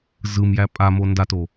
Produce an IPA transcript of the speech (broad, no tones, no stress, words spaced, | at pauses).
zɯmjæ pʼamo ndato